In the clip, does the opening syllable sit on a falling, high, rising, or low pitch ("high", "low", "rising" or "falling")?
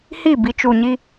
falling